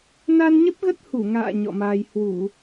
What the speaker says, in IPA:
n a˧ n ɲ ə˦˥ p̚ ɣ ə˦˥ t̚ h u˧˩ ŋ a̰ː˧˨ ɲ ɔ̰˧˨ m aː˧ j h w u˧˩˨

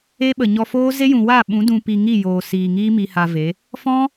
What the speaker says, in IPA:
e˦ ɓ ə˨ ɲ ɔ˧ f oː˦ z e˦ j ũ˨ w a˦˨ ɓ ũ˨˦ d ũ˧ p i˧ ŋ i˦˨ j oː˨ s iː˨ ŋ iː˦ m i˧ h a˧ v e˨˦ | f ɔ̃˦

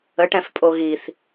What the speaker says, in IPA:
ə ʈ ɛ̃ f pʼ o ɣ i θ

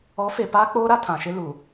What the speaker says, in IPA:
ɔ˨˦ f e˨ p aː˦ k͡p oː˦ ɾ a˦ tʰ ã˨ ʃ ɪ˦ l u˨

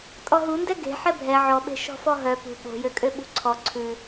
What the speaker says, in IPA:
tʼ ɔ ɦ u n d ɛ ɡ e̤ ħ ɛ bʱ ɛ ʕ ɔ ɓ e̤ ʃ ɔ̤ f ɔ ɦ œ p ṳ ɓ o̤ j ø kʼ ø ɓ ṳ ǀʰ ɔ ǀʰ ʉ

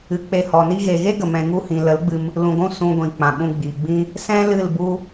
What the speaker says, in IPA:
ɨ˨˦ k͡p e˧ h ɔ˨ n i˧ ɣ e˨ ɣ e˦ ɡ ə˨ m ɛ̃˧ ŋ u˧ h ĩ˨ l ə˨˦ l ɡ͡b ɨ˧ m | l ũ˨ ɡʷ ũ˧ s ũ˧ ɡʷ ĩ˨ k͡p ã˨ ɓ ũ˧ ɡ͡b i˨ ɡ͡b ĩ˦ | s ɛ̃˦ l ɨ˦˨ l b u˦

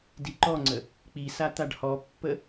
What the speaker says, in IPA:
d i ǃ ɔ ŋ͡ǀ ə | k͡p i s a t̪ a ɖ h ɔ pː ə

